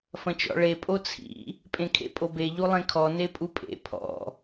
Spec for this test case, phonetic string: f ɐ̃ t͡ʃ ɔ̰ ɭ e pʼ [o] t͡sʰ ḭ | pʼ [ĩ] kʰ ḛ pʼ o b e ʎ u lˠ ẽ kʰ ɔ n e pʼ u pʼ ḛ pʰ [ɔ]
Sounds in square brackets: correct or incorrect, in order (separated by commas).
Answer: correct, incorrect, incorrect